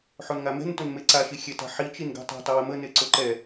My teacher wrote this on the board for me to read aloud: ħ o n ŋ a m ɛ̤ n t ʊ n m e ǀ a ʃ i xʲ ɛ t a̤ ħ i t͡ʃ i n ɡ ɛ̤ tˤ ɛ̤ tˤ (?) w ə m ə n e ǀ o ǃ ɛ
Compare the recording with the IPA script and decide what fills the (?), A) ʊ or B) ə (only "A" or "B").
B